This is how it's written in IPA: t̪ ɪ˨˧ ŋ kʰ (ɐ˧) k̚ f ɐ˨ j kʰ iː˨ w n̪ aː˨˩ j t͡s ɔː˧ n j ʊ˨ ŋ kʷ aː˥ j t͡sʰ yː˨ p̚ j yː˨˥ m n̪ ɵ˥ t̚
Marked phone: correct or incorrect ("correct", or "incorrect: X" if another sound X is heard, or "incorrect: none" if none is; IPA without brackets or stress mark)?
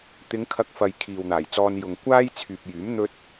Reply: correct